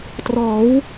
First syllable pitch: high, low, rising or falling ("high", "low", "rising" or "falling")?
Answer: rising